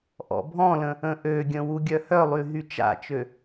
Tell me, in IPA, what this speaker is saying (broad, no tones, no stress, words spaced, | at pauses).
ʔɔ̰bʱɔ̃lə̃ | ə̃ʔøɡʲə̃ wuɡʲœhœlˠy ɦyt͡ʃa̰t͡ʃø